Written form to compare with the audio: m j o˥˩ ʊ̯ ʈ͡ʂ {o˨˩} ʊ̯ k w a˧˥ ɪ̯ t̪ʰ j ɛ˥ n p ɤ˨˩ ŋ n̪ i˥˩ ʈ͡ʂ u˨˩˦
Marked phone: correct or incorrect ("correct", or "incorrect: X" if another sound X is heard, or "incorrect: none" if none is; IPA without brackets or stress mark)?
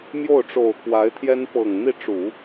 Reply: correct